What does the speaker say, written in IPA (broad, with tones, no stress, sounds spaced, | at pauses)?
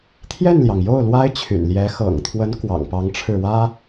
t̪ʰ j ɛ˥˩ n l j ɑ˩ ŋ j o˥˩ ʊ̯ l w a˥ ɪ̯ t͡ɕʰ y̰˨˩ n l j ɛ˧˥ x ɤ̰˨˩ ŋ t̪ʰ w ə˧˥ n k w ɑ̰˨˩ ŋ p ɑ˧˥ ŋ ʈ͡ʂʰ ɻ̩˥˩ w ä˥